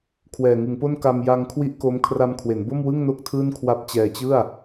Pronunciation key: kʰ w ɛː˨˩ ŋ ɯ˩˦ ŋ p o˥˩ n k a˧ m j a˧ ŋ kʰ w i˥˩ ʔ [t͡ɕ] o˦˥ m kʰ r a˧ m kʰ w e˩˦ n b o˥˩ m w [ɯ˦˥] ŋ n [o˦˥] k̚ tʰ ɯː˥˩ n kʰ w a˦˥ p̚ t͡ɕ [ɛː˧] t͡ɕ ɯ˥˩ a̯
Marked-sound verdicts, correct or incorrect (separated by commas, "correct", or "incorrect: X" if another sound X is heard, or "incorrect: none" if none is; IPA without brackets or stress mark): incorrect: k, incorrect: ɯ˥˩, incorrect: o˥˩, correct